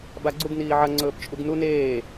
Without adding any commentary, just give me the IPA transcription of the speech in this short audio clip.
b a ɡ͡ǀ u ɡ n iː ʕ ɐ ŋ͡ǀ ɵː p t͡ʃʼ u ɡ n u n eː

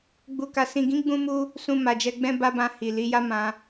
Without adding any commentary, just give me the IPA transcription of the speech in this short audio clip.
ɡ͡b u˨ k a˨ s ĩ˨ ɡ ĩ˨˦ ɡ͡b ũ˧ m u˧ | s ũ˧ m a˨ d͡ʒ ɛ˧ ɡ͡b ɛ̃˦ b a˦ b ã˧ h i˨ l i˨˦ j a˦ m ã˧

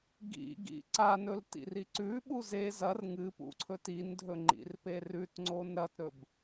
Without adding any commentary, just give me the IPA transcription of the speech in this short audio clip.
ɡ ḭ ɡ ḭ ǀ a n ɵ l t ḭ r i ǀ ʉ ɓ u z e z ɐ r ŋ ɨ p ṵ ǀʰ ɵ t i n dʱ ɵ ŋ͡ǃ ḭ r p e r ʉ t ŋ͡ǀ o n ɾ ɐ t ɾ ɵ b

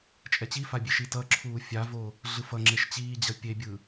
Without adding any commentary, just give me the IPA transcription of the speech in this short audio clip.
t͡ʃʼ ɛ t͡ɕ i f a bʲ e ʃ i t ʌ ǁʰ uː fʲ a v o | ɮ ɯ f ʌ ŋ͡ǁ e ʃ t͡ɕ iː d͡ʑ ʌ pʲ e bʲ ɯ

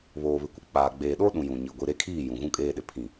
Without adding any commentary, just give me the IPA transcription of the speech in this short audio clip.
β oː˨ β ɪ˨ kʷ ɪ˨ k͡p aː˨ ɡ͡b eː˨ ɗ o˦ ɗ ũ˨ j ũ˨ ɲ i˨ ɡʷ i˨ ɾ e˦˨ kʰ iː˦˨ j ũ˨ ɣ ũ˦ kʼ eː˦ ɗ ɪ˨ pʰ ĩ˦˨

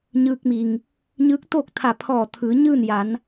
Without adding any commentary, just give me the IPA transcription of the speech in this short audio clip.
ɲ ɯː˧ k̚ m i˩ ŋ | ɲ ɯː˧˥ k̚ t̪ oː˥˨ k̚ t̪ʰ a˧˩ pʰ ɔː˧˩ t̪ʰ ɯː˩˧ ɲ ɯː˥˨ n j a˩˧ n

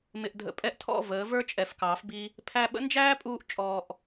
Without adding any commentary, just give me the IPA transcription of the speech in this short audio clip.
m ɪ˨ ʔ dʱ ə̰˨˦ pʼ ɛ˧ ʔ tʰ ɔ̰˦˨ v əː˨˦ v ə˞˦ t͡ʃʼ ɛ˨ f k ɑː˨˦ f b i˧ | pʰ æ˧ ɓ ə̰˦ n d͡ʒ æː˦ pʼ uː˧ ʔ t͡ʃʼ ɔː˧ ʔ

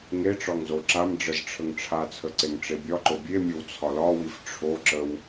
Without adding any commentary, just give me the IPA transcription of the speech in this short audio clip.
ŋ e ʈ͡ʂ ɒ ŋ z o ǁ a m ɖ͡ʐ ə z ʈ͡ʂʰ ə ŋ ʈ͡ʂʰ a t͡sʰ ə ǀ e ŋ ʈ͡ʂ e bʲ ɒ ǃ o bʲ e mʲ o w t͡sʰ ɒ l ɒ w i f ʈ͡ʂʰ o ǁ ə w

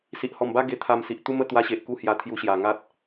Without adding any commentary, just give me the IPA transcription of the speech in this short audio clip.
s i˨ ʔ h ɔ˨˩ m b a˦ ɡ e˧ t̪ʰ a˧ m s i˨ ʔ t̪ u˦ m ə˥˧ t̪ w a˧ ɕ e˨ ʔ k u˥˧ h j a˧ t̪ʰ j u˧ ɕ j a˨˩ ŋ a˦ t̚

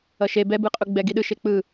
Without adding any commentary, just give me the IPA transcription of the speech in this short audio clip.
ʌ ʃ e b ɛ b ɯ qʼ u ɡ͡b ɛ ɡ i ɗ ɯ ʃ e k͡p ɯ

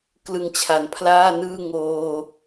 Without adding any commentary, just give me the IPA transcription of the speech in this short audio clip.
k l ɯ˧ ŋ t͡ɕʰ a˩˦ n pʰ l aː˥˩ n ɯː˥˩ ŋ oː˧

